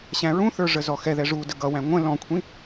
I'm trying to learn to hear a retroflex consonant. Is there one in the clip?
yes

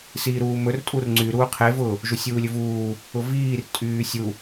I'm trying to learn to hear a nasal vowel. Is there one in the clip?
no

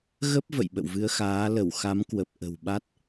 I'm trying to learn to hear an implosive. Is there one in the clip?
yes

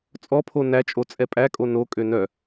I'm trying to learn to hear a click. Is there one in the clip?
no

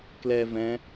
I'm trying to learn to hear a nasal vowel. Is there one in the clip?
yes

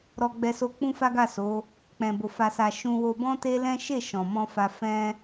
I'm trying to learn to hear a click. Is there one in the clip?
no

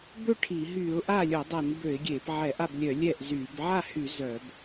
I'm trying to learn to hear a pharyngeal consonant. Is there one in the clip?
yes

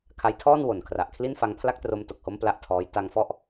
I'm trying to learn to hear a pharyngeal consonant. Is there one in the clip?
no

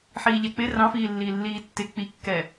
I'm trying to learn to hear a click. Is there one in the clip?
no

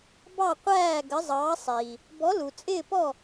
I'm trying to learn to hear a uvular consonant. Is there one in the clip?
yes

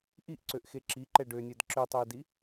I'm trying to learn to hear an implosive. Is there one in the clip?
no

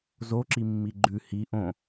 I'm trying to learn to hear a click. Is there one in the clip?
yes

